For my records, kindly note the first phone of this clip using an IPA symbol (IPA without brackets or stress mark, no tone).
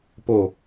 p